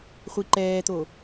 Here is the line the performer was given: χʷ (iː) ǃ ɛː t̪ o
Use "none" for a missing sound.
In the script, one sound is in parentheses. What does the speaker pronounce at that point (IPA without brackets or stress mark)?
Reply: i